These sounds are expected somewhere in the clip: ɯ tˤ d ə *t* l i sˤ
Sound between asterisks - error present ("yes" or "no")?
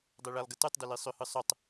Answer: yes